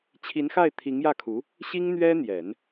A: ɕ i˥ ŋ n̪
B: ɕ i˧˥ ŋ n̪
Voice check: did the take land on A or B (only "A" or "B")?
A